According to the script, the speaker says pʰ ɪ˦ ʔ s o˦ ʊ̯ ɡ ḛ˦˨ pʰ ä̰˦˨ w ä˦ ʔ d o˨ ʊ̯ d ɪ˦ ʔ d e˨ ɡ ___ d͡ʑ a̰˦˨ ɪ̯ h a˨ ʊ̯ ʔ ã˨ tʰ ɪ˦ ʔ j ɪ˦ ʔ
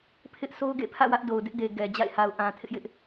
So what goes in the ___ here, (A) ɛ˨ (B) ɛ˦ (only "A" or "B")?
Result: A